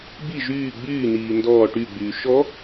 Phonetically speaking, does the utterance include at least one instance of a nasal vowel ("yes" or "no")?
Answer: no